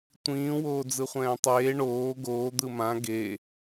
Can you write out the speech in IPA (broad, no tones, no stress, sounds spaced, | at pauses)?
tʷ ĩː w oː d͡z ɯ χʷ ɛ̃ː tˤ eː ɳ oː ɡ oː d̪ ɯ m ã ɡ e